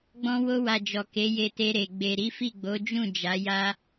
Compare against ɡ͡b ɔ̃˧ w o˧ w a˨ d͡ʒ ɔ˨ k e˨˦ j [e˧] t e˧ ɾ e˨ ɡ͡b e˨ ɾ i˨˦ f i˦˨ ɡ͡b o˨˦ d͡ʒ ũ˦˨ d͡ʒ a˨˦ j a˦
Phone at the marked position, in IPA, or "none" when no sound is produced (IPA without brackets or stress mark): e˧